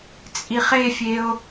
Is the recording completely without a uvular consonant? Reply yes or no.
no